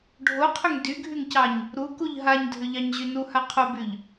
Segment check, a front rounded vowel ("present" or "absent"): present